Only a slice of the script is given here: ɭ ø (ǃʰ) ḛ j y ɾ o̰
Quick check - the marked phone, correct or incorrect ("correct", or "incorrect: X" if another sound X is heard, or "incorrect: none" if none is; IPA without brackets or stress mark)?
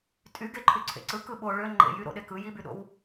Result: incorrect: ŋ͡ǃ